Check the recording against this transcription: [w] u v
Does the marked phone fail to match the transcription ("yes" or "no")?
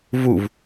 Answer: yes